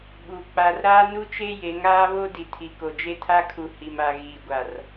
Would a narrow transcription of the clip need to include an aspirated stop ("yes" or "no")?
yes